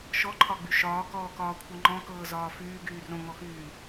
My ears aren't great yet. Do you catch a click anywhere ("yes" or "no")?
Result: yes